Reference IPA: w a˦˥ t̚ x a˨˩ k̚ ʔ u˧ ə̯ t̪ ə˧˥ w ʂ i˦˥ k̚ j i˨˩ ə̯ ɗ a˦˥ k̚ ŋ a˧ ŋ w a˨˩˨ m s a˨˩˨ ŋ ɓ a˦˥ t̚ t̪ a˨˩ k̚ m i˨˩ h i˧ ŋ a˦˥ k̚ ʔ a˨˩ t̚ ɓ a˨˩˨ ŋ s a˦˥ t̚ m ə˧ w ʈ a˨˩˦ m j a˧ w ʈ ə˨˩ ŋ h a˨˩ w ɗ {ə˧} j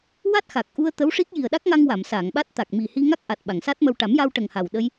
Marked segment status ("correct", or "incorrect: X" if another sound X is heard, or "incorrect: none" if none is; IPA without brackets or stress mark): correct